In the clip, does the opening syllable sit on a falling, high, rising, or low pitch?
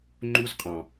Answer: high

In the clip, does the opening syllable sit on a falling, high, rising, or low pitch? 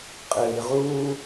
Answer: low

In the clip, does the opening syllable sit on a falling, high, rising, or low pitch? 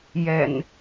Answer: low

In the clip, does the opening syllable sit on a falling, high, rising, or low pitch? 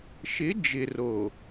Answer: rising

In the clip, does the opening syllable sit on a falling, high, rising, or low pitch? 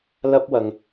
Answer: high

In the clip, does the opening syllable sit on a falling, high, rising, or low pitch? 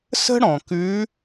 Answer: high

